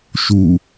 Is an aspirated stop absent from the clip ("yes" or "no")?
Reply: yes